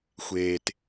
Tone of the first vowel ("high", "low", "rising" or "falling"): low